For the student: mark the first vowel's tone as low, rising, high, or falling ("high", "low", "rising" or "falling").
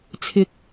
low